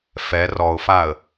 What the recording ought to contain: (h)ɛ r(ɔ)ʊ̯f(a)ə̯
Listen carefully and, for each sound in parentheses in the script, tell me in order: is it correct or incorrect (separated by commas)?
incorrect, correct, correct